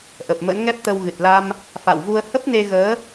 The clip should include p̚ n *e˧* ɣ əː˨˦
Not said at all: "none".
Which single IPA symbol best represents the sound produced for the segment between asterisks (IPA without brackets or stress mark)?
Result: e˧